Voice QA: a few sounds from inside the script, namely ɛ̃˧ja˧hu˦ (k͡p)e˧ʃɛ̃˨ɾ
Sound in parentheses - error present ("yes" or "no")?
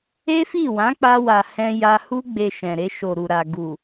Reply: yes